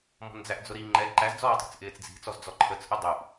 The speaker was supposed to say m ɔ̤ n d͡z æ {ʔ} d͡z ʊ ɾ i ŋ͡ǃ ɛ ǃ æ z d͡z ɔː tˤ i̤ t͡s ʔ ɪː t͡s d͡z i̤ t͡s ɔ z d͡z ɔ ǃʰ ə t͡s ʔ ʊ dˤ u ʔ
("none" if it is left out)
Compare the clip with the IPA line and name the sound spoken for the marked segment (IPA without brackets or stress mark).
ʔ